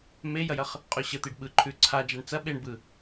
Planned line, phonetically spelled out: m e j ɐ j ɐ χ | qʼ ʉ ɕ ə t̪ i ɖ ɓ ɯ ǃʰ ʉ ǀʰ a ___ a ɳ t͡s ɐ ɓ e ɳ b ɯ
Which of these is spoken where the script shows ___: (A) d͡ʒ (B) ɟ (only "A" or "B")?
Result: A